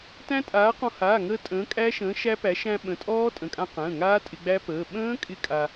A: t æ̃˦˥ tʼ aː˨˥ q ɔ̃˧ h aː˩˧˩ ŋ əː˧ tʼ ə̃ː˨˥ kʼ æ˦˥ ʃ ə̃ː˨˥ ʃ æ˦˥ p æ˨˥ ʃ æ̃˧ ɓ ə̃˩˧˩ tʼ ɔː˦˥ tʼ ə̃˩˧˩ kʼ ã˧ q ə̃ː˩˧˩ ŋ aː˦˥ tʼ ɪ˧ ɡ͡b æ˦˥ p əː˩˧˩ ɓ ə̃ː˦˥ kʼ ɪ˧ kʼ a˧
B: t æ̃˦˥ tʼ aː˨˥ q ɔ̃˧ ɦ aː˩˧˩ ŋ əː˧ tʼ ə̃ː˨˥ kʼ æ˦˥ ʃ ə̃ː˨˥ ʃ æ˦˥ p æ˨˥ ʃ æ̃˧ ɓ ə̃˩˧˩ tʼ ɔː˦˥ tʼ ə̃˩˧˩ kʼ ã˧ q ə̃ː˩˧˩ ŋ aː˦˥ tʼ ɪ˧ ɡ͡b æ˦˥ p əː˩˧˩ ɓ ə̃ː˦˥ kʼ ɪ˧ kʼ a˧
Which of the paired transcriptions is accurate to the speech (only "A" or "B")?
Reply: A